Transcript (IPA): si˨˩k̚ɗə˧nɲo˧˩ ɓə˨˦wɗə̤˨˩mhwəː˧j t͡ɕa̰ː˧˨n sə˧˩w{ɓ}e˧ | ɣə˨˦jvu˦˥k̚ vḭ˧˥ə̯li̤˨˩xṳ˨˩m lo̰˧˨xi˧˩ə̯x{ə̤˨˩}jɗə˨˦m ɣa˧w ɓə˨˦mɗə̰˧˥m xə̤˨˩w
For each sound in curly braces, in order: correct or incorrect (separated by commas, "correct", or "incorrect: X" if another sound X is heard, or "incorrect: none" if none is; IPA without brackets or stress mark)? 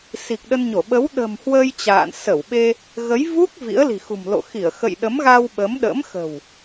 correct, incorrect: ə̰˧˨